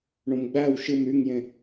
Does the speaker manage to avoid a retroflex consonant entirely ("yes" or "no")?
no